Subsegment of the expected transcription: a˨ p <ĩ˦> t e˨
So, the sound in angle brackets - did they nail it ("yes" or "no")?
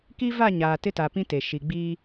yes